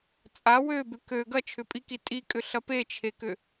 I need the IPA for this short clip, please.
t͡sʼ a w ø b ʏ k ø ɡ ɐ t͡ʃʰ ʏ pʼ i k i tʼ i kʼ ʏ ɬ ɐ p e t͡ʃʰ e k ʏ

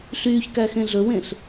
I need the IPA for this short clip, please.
ɬ yː ç k æ x ẽ ɮ ɵ w ẽ ɬ

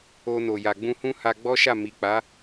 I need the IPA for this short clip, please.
o˧ n o˨ j a˨ ɡ͡b ũ˧ h ũ˦ h a˧ ɡ͡b ɔ˦ ʃ a˦˨ m i˨ k͡p a˨˦

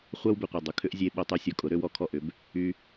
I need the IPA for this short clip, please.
χʷ œ˦ w b ʏ˨ qʷ a˨ dˤ ʊ˨ kʰ ʏ˦ ʔ zʲ e˧ ɓ o˧ tˤ y˧ sʲ ɔ˨ kʼ ʊ˨˦ ɾ ø˦ w ɔ˦ kʰ ɔ˦˨ ʔ ʏ˨˦ b | y˧

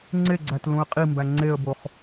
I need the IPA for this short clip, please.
ŋ͡ǀ e ɡ͡ǀ æ t l ũ ə̯ qʼ i m b æ ŋ͡ǀ e ə̯ b o χ

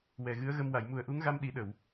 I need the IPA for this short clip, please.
w ɛ˨˩ ɣ ɨ˧˥ ə̯ ɣ ə˧ m w a˨˩˨ j m u˨˩ ə̯ ʔ u˧˥ ŋ ɣ a˧ m ɗ i˨˩˦ ɗ ə˨˩˨ w

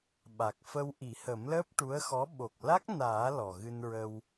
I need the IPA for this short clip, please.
ɓ a˨˩ k̚ f ə˧ w ʔ i˨˩˦ h ə˨˩˦ m l əː˦˥ p̚ ʈ u˧˥ ə̯ x ɔ˧˥ ɓ o˨˩ k̚ l a˦˥ k̚ n aː˨˩˦ l ɔ˨˩ ɣ ɨ˧ n ɹ ə˧ w

